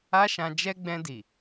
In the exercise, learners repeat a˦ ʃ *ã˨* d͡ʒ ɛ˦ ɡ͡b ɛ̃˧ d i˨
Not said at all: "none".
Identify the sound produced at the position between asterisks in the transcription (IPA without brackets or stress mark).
ã˧